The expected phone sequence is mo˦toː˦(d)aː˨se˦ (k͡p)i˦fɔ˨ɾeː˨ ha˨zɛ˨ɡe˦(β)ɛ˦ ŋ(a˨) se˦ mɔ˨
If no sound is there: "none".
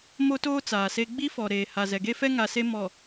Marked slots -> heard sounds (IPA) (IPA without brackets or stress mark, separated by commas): t͡s, ɡ͡b, f, a˨